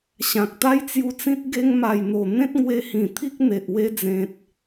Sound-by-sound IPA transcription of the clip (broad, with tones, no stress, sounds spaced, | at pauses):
ɕ ã˨ k̚ t̪ a˦ j t͡s j u˧ t͡s ĩ˦ t̚ ɡ e˧ ŋ m a˨˩ j n̪ o˨˩ n̪ ẽ˦ t̚ ŋ w e˧ h ĩ˨˩ t̪ʰ i˦ k̚ n̪ e˨ ʔ w e˧ d͡z ẽ˨ t̚